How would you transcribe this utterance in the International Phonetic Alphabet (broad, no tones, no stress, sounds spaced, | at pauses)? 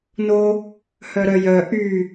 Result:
n o | h œ ɾ œ j œ ʔ y